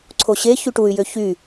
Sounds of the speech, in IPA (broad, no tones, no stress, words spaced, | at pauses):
ǀʰoɕe çyʈuy̯ jøçy